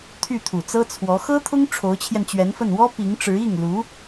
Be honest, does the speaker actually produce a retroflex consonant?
yes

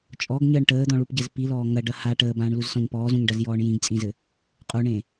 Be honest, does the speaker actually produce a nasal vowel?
yes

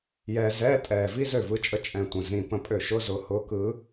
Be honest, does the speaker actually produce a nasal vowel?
yes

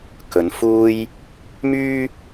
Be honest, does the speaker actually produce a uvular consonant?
no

